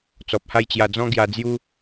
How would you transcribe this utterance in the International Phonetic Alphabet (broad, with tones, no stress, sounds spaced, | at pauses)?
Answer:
t͡s ɔ˨ p̚ h a˥˧ j t͡ɕ j a˧ d͡z ɔ̃˦ ɡ j a˧ d͡z j u˦